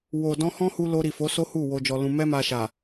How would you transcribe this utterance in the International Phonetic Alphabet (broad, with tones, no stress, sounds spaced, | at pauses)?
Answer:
w o˨ d ɔ̃˧ h ɔ̃˦ h u˧ l o˧ ɾ i˨ f o˨˦ s o˦ h u˦˨ w o˧ d͡ʒ ɔ˧ l ũ˧ m ɛ˦ m a˧ ʃ a˨